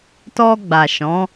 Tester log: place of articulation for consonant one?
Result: alveolar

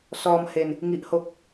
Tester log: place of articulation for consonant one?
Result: alveolar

